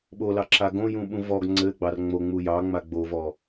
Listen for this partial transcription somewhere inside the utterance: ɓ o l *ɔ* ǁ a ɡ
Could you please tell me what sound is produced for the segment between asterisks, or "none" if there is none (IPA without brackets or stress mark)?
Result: ɑ